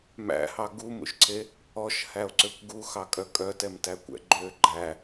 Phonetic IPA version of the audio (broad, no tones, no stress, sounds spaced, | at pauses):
m æ̰ h ɑ ɡ u m ṵ ʃ ǀʰ e | ɔ ʃ h æ o̯ ǀ ø kʷ ɡ u x ɑ kʼ œ kʼ œ t ɛ m t æ kʷ ɛ̰ ɡ͡ǃ ø ɡ͡ǃ æ